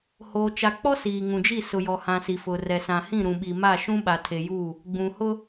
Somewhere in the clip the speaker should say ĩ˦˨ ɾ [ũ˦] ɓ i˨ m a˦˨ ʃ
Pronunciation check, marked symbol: incorrect: ũ˨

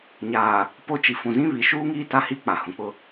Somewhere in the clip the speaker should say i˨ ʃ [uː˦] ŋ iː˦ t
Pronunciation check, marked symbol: correct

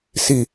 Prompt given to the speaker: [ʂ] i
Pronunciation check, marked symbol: incorrect: s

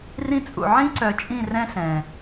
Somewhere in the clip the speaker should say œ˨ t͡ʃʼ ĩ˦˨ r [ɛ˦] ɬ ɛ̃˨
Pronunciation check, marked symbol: incorrect: ɛ̃˦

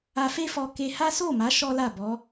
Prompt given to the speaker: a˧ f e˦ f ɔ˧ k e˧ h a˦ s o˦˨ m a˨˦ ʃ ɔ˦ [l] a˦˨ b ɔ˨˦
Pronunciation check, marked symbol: correct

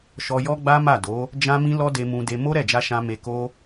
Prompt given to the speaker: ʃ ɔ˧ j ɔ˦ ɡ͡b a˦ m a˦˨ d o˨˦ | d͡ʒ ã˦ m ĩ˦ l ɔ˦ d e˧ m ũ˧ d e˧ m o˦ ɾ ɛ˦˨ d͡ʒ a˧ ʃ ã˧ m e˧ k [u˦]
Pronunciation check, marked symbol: incorrect: o˦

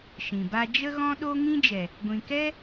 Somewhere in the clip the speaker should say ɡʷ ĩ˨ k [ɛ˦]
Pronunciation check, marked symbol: correct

